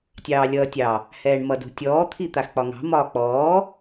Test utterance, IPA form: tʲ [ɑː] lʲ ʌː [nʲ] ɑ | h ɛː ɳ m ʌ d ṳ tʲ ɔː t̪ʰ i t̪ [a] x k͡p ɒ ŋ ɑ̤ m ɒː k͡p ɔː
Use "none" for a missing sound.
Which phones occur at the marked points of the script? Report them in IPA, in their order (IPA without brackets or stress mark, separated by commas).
ɑː, tʲ, a